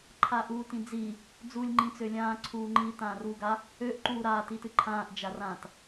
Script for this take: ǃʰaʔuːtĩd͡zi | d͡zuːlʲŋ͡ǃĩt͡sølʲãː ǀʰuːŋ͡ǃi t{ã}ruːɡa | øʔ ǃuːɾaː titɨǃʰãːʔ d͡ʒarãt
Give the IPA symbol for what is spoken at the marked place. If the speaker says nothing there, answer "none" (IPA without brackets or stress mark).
ãː